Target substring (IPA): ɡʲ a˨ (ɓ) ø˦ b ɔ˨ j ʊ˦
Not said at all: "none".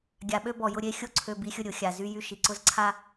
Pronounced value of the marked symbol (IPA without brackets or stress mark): ɓ